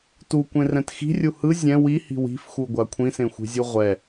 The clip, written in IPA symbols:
t u kʷ ẽ r ɛ̃ t x i̤ rʲ u h ɯ zʲ ɛ̃ w i h i̤ w i̤ f x u ɡʷ a kʷʰ ĩ s ẽ xʷ i̤ zʲ u ʁʷ ɛ

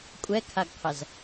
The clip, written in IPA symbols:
kʷʼ ɛ kʰ a ɡ qʰ ɐ z

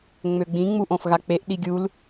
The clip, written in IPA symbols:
ŋ͡m ø ɡ͡b ĩ ŋ͡m u ʔ õ f ɣ a k͡p e ʔ ɗ i ɡʲ u l

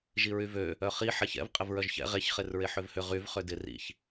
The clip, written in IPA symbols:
ʒ i ɹ y v ø | œ χ i ħ ɛ ç ɛ̰ v qʼ ɪ v ɹ œ ʒ ç ɛ̰ ʁ e ç χ e r ɹ e ħ ø v h ʏ ʁ y v χ ø d ɪ r ḭ ç

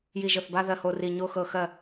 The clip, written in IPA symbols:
j i˧˩ ʒ ɤ˧˩ θ b a˥˧ ð ɜ˧˩ h o˥˩ r i˧˩ ɲ o˥˧ x ɤ˧˩ x ɜ˥˩

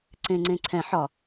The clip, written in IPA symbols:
ǀ ẽ ŋ͡ǀ ẽ ǀʰ ɛ̃ ħ ɒ

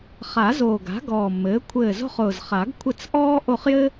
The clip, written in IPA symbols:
χ a˨˩˦ z oː˨˩ ɡ a̤˩˥ ɡ ɔː˨˩ mː ɘː˩˥ kʷʰ ɘː˦˨ z o̤˥ χ ʊː˨˩ z χ a˨˩˦ ɡ kʷʰ ɘ˦˨ t͡s ʔ ɔː˥ ʔ o˦˨ χ j ɘ˥

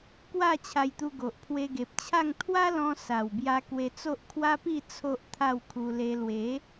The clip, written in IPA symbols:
k w a˥˧ t͡ɕʰ a˧ j t̪ u˧ ɡ o˨ ʔ pʰ w e˧ ɡ e˨ p̚ t͡ɕʰ a˥˧ ŋ t̪ʰ w a˦ l ɔ̃˧ s a˨˩ w b j a˧ k w e˧ t͡s o˦ ʔ kʰ w a˦ p i˥˧ t͡sʰ o˦ ʔ t̪ʰ a˥˧ w kʰ u˧ l e˧ l w e˨˦

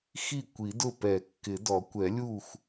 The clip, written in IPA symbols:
x i˥˩ kʷ i˨˩˦ d ʊ˥˩ p ɛ˨˩˦ kː ɪ˨˩˦ d ɔ˨˩˦ kʷ ɛ˨˩˦ lʲ u˥˩ x

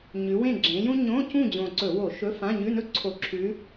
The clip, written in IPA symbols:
ɲ ʉ˨˦ w ẽ˥˨ ɡ͡ǁ ẽ˨˦ j ũ˥ ɲ õ˧˥˧ c ũ˥˨ d͡ʑ õ˨˩ ǀ ɵ˧˩˧ w o˧˩˧ ʃ ɵ˧˥˧ f ã˧˥˧ ɲ ʉ˧˥˧ n ɵ˥ ǀʰ o˧˩˧ ǁʰ ʉ˨˦

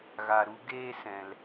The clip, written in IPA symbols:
ɣ a˨ ɾ u˧ ɡ eː˧ s ɛ̃˦ l

